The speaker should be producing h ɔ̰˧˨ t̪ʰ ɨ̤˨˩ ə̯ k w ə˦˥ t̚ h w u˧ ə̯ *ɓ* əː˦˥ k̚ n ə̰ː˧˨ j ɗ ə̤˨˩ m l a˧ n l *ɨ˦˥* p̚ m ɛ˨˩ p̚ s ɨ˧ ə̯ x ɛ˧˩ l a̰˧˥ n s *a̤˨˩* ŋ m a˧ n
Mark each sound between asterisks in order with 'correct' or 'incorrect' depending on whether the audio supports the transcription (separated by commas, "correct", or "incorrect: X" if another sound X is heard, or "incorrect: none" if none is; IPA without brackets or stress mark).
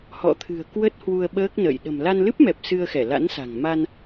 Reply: correct, correct, correct